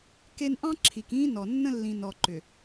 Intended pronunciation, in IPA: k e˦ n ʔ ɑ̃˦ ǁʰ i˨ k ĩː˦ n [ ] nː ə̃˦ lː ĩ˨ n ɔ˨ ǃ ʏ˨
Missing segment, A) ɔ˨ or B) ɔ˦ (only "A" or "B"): A